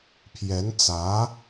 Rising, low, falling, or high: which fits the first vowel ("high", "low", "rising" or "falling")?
rising